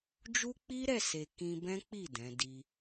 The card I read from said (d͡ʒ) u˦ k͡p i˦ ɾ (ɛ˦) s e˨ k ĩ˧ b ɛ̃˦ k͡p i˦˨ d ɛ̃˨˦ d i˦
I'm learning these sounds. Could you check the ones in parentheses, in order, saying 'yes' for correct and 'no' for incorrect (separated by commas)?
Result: yes, no